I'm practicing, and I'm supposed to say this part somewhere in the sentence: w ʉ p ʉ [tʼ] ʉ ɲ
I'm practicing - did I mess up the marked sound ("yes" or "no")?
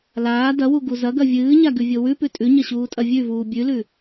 no